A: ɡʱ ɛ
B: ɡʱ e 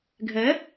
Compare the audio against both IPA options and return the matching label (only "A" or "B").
A